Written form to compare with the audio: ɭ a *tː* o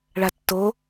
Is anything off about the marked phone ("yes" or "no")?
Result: no